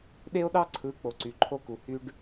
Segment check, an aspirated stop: present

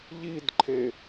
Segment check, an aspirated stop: present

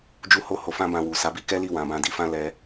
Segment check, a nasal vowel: present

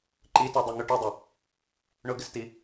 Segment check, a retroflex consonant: present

